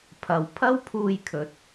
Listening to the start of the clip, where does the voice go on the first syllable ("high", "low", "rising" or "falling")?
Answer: low